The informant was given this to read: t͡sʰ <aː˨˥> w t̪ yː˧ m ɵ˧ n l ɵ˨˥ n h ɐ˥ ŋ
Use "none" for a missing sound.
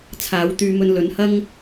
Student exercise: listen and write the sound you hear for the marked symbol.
aː˨˥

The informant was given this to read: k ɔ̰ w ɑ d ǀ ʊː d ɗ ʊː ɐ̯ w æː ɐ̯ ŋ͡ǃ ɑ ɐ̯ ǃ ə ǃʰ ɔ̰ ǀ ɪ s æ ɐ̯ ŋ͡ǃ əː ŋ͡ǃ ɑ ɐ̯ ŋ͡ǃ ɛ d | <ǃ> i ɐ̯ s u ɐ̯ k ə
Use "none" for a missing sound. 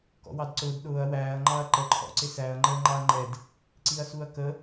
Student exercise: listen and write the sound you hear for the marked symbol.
ǀ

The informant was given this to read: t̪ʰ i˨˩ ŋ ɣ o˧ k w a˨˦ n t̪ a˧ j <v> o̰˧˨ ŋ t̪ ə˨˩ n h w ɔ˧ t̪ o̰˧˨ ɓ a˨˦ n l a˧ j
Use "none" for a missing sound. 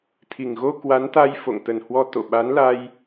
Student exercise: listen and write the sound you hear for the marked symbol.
f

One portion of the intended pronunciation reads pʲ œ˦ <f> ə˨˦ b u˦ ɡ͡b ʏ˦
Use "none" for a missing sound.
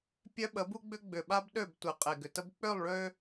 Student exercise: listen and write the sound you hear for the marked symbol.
ɓ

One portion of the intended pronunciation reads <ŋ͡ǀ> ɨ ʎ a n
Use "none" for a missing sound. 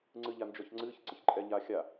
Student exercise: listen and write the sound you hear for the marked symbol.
ŋ͡ǀ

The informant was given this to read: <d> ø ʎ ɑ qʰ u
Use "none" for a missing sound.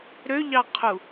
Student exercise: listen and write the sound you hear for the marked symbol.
ɾ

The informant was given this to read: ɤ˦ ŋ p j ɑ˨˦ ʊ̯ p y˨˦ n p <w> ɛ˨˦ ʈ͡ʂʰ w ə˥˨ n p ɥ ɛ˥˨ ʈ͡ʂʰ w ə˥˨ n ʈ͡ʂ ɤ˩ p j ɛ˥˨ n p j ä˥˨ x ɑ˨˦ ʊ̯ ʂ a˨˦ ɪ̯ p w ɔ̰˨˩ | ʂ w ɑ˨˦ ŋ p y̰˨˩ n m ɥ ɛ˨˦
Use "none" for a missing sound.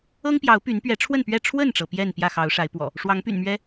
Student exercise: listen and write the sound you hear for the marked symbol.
ɥ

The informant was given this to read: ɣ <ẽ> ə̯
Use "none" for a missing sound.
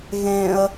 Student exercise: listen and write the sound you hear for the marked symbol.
ẽ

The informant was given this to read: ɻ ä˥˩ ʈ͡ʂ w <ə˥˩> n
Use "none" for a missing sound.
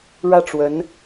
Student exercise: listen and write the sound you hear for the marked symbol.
ə˧˥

